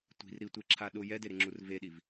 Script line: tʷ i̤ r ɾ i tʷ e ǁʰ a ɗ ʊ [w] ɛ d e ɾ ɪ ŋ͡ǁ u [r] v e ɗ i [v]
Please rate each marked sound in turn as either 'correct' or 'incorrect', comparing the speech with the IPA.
incorrect, correct, correct

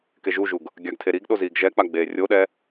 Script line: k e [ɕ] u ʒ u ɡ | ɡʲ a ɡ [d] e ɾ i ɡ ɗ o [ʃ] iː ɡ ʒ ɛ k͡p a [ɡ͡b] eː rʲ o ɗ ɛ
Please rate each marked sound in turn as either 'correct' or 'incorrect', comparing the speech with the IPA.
incorrect, incorrect, incorrect, correct

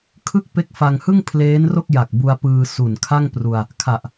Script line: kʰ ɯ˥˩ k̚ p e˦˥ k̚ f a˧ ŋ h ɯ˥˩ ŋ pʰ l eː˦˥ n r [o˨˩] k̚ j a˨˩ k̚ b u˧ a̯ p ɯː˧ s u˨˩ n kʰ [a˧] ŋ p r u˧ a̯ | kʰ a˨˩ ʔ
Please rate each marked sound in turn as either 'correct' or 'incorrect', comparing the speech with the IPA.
incorrect, incorrect

